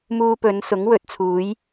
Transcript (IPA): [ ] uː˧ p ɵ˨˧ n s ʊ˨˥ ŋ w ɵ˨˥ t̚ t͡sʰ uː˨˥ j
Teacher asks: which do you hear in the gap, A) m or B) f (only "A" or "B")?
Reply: A